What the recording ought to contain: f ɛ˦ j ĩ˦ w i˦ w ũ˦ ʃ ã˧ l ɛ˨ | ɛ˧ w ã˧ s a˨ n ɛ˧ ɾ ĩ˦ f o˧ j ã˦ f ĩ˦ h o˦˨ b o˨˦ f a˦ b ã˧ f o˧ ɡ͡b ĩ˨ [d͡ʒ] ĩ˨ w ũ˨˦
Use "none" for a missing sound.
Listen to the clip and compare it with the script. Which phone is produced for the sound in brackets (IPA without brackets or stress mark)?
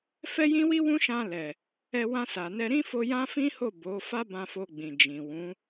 d͡ʒ